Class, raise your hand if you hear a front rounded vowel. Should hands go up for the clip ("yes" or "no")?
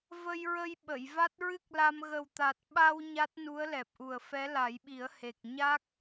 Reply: no